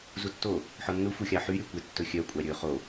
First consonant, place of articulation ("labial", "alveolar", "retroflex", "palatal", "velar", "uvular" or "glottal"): alveolar